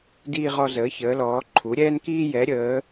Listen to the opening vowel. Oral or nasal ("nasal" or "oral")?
oral